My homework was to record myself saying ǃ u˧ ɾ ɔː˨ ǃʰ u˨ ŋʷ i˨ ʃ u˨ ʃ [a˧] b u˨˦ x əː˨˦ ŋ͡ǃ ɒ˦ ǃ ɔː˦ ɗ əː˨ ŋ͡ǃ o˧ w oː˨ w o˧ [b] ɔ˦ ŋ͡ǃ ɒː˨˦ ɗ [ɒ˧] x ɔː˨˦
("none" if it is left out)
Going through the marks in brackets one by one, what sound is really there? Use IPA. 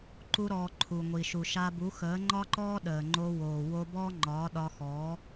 a˧, b, ɒ˧

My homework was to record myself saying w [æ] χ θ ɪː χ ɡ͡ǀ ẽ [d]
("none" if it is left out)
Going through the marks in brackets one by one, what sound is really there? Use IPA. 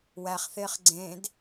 æ, d

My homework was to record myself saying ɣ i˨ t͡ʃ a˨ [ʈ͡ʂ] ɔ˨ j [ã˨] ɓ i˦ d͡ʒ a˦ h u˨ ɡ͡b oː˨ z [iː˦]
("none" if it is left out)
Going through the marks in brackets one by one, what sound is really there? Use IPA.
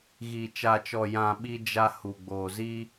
t͡ʃ, ã˨, iː˦

